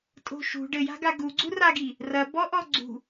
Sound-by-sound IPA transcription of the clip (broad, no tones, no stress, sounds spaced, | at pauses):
tʼ o̤ ʃ ṳ ɖ ɘ j a̤ ɡ a ɡ u ɡ͡ǀ u r a ɡ i | r ɐ b ɔ ʔ ɔ ɡ͡ǀ ṳ